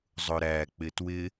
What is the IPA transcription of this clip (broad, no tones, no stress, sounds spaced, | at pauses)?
zˤ ʊ ɾ æ k͡p ɪ t w ɪ